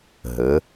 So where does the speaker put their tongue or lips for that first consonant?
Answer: throat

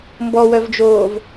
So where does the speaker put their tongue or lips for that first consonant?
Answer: lips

